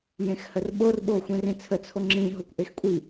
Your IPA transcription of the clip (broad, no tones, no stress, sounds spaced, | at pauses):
j ẽ x h ə r ɓ o r ɓ oː xʷ ĩ r ĩ t͡sʰ ə t͡sʰ o ŋ͡ǁ ĩ ɦ o kʷ ʔ e x kʷʼ i